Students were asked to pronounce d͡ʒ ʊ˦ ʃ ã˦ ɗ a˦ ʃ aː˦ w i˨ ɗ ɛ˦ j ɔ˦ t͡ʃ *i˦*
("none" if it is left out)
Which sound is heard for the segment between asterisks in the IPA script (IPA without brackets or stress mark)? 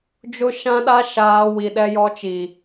i˨